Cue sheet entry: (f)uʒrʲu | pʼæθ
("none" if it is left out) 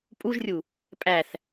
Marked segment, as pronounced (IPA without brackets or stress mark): pʼ